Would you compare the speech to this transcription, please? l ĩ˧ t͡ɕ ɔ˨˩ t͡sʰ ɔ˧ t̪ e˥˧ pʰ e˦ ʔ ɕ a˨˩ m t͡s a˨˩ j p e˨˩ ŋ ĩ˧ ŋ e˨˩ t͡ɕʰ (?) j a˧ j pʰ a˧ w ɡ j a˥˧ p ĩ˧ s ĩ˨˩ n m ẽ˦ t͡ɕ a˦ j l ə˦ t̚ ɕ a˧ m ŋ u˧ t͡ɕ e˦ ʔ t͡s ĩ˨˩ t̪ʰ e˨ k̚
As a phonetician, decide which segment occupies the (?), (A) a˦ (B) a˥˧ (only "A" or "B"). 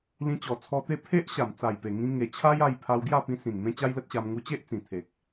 A